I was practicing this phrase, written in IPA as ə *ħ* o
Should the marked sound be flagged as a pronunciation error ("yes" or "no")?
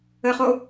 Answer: yes